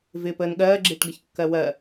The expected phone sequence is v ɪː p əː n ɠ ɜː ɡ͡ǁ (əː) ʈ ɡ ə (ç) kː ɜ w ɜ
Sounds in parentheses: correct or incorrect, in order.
incorrect, correct

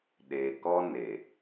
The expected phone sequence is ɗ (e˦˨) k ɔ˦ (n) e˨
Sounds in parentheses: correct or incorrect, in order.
incorrect, correct

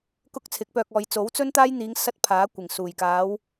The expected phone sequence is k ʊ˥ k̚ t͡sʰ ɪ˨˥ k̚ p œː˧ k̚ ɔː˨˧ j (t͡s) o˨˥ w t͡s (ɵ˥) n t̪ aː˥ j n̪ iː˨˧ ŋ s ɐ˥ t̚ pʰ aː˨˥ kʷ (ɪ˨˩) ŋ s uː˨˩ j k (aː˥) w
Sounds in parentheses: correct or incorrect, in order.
correct, correct, correct, incorrect

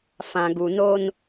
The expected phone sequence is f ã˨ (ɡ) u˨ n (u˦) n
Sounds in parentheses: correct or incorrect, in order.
correct, incorrect

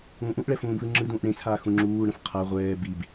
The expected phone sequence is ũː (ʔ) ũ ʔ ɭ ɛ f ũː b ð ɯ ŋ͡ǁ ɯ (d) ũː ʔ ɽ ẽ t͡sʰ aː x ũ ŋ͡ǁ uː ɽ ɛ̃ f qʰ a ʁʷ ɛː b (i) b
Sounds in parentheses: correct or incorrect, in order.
correct, correct, correct

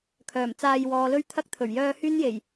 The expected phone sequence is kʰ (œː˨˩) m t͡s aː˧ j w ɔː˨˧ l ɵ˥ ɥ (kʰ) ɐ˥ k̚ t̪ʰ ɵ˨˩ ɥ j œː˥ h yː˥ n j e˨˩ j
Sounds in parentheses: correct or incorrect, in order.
correct, incorrect

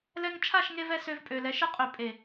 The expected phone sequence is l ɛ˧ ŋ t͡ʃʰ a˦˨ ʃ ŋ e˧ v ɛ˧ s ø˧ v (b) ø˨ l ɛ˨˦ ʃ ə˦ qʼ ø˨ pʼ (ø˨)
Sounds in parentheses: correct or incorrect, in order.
incorrect, incorrect

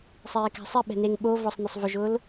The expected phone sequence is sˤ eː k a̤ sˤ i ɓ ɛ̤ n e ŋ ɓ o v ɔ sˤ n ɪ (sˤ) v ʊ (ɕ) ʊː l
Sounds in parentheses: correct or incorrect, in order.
correct, incorrect

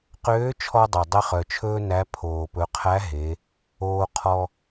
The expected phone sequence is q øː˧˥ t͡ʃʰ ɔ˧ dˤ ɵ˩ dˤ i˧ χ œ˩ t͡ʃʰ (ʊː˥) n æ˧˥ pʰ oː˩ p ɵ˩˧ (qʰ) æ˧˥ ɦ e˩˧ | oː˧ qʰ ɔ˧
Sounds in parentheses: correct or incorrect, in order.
incorrect, correct

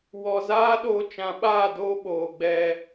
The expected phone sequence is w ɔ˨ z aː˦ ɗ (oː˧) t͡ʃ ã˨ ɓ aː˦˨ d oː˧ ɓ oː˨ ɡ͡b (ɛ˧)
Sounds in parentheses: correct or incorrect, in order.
correct, correct

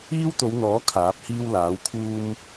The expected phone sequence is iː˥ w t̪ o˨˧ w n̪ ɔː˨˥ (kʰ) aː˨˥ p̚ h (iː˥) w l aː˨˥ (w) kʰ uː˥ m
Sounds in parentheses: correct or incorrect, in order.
correct, correct, correct

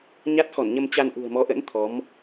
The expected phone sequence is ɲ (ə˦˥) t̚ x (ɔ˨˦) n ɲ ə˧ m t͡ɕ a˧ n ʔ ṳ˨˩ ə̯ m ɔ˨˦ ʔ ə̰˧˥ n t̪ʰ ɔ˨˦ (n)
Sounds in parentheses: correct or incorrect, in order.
incorrect, incorrect, incorrect

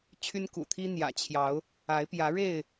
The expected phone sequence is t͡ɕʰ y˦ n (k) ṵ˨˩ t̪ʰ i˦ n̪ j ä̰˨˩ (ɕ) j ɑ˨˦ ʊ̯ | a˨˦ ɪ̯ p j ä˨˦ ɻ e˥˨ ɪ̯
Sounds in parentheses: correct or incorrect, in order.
correct, incorrect

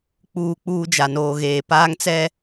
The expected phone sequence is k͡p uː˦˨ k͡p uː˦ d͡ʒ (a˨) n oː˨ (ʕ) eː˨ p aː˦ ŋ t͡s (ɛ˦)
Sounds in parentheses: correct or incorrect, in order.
correct, incorrect, correct

